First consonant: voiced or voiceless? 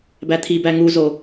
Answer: voiced